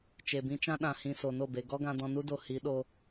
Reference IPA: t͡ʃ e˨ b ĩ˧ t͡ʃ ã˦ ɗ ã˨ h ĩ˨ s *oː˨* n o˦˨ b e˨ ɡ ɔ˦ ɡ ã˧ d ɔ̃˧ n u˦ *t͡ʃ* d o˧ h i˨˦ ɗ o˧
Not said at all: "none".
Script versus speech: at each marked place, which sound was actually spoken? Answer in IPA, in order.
o˨, none

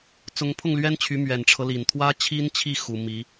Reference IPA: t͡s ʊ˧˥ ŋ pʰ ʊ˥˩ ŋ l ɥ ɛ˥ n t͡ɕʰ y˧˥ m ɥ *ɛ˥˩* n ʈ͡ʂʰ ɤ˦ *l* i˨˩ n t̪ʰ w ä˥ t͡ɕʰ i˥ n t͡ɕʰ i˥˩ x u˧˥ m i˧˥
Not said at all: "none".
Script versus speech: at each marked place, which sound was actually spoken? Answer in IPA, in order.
ɛ˨˩, l

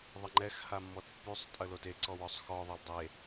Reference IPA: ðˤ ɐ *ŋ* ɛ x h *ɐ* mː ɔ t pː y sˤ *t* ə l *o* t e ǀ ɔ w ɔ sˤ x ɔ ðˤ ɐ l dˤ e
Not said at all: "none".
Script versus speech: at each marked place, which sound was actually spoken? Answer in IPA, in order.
ŋ͡ǃ, a, tʼ, o

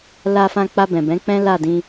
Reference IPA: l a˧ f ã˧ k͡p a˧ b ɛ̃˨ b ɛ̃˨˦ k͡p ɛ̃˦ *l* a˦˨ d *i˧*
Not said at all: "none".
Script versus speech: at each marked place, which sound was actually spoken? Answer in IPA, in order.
l, ĩ˧

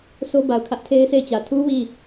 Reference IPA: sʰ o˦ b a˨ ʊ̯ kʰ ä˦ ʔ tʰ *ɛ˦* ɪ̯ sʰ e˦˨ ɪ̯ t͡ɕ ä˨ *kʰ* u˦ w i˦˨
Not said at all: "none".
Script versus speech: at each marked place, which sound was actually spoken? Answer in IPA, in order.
e˦, tʰ

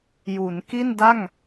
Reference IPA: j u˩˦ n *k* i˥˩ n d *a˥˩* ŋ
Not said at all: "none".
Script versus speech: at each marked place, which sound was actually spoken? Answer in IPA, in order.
k, a˥˩

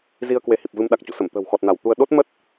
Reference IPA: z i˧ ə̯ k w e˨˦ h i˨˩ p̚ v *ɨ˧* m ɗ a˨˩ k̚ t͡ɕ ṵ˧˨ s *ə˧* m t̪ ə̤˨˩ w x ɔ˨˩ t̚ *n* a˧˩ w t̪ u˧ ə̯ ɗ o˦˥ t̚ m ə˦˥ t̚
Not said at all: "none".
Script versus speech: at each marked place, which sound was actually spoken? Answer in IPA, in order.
ɨ˧, ə˧˩, n

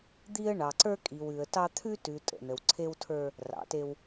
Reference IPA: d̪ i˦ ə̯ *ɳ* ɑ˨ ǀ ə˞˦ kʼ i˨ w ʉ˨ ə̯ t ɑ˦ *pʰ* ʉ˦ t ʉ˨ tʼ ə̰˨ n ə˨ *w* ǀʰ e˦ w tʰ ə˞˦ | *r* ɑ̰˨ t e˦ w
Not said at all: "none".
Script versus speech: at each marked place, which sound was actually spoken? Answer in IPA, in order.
ɳ, t̪ʰ, w, r

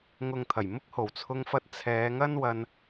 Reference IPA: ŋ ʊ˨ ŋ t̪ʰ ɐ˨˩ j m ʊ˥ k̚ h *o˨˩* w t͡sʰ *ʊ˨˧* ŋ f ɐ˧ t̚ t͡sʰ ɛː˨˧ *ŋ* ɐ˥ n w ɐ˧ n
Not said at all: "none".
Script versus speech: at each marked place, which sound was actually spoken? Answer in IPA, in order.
o˨˩, ʊ˧, ŋ

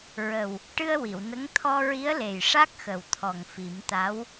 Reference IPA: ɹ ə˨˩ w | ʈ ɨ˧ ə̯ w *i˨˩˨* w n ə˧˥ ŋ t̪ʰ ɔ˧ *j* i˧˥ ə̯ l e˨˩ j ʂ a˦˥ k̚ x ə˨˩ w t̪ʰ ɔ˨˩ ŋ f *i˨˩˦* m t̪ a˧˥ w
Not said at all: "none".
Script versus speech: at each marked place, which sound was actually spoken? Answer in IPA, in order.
i˨˩˨, ɹ, i˨˩˦

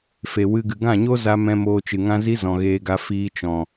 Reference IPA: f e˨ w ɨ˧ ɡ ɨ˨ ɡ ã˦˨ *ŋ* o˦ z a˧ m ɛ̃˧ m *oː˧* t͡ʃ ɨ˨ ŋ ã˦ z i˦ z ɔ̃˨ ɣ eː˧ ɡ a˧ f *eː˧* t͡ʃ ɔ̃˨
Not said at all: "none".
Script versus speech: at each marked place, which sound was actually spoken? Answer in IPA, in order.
ɲ, oː˧, iː˧

